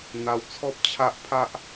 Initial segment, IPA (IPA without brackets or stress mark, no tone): n̪